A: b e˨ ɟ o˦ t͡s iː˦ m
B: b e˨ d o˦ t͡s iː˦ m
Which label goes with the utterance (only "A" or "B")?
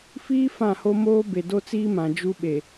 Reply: B